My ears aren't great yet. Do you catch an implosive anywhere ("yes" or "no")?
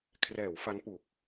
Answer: no